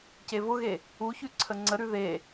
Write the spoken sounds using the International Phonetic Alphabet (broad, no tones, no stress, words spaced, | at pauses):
cevʊɣe | uçʉ ǀʰəŋ͡ǀəɾʉ ðe